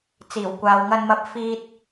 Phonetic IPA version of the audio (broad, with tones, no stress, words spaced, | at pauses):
t͡siː˨˩wkʷaː˨wŋɐ˧nmɐ˧p̚ fiː˥t̚